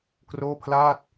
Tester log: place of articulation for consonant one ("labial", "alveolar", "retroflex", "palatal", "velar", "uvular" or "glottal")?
velar